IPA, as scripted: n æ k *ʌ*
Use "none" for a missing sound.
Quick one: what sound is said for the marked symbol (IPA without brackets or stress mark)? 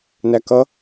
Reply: ʌ